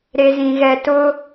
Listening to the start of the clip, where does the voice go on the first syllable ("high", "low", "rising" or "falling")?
low